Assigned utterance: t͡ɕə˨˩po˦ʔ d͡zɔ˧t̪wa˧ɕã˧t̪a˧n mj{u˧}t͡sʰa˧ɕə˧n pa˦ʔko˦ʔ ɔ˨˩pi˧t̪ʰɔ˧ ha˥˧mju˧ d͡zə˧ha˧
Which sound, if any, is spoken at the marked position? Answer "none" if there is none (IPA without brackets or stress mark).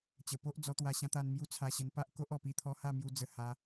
u˦